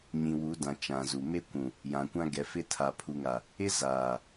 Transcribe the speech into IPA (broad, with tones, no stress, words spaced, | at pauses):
ɲĩ˨wu˨˦dã˨ t͡ʃã˨zu˨ me˦kʷũ˨ | jã˨kʷã˦ ɡɛ˨˦fɪ˦ tʰa˨pʰu˨ŋa˨ | ɪ˦ zaː˨